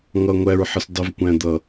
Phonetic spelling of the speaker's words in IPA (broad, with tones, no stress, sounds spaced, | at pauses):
ŋ ʌ˨ ŋʷ æ˨ ɹ ħ ə˨ s dˤ ɪ˨ v kʷ æ̃˨ d̪ ʌ˨